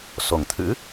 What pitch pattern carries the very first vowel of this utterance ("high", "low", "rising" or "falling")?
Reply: low